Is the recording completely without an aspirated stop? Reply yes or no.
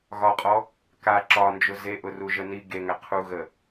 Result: no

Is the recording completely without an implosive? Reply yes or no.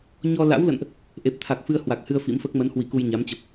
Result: yes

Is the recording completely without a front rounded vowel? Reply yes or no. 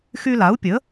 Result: no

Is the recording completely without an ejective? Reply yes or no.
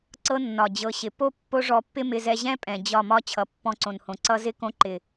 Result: no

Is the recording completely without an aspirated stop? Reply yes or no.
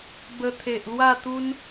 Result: no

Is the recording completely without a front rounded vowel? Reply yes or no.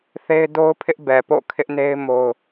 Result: yes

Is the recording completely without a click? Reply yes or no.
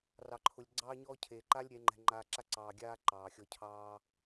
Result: no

